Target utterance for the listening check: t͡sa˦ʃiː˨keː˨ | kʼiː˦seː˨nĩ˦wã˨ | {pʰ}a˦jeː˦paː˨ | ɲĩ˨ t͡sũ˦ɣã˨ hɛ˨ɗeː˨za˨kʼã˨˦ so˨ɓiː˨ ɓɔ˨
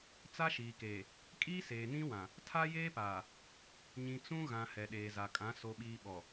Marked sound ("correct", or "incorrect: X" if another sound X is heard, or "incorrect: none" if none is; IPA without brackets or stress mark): incorrect: tʰ